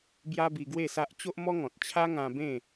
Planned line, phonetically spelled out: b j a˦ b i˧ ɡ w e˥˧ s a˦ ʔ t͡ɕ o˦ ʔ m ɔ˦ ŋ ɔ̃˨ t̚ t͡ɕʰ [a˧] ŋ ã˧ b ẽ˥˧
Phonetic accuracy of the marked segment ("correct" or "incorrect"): incorrect